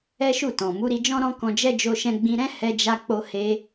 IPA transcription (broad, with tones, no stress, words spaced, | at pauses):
ɛ˦ʃu˦˨tɔ̃˨ mu˨˦ɾi˧d͡ʒɔ̃˦ ɾɔ̃˦kɔ̃˧d͡ʒɛ˦ d͡ʒo˧ʃɛ̃˧ɡ͡bĩ˧ɾɛ̃˦ hɛ˧d͡ʒa˧k͡po˧he˧